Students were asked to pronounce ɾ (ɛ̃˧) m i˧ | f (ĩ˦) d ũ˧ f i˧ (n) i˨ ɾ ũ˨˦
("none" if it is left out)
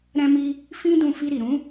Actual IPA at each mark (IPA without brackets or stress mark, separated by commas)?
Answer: ɛ̃˧, ĩ˦, ɾ